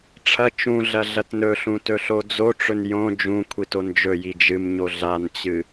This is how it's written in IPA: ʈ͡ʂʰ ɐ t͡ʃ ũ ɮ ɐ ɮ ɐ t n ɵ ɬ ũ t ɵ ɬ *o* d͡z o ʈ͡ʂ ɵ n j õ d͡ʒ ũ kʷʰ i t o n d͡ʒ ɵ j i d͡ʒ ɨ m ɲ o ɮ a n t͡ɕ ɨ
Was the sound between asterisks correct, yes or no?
yes